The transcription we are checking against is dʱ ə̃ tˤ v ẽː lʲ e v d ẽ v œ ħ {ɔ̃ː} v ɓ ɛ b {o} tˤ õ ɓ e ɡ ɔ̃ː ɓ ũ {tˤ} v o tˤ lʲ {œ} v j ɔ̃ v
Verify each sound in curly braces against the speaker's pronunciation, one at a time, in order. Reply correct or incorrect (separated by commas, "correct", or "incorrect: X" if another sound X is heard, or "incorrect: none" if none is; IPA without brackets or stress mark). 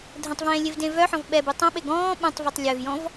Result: incorrect: ɔ̃, incorrect: u, correct, correct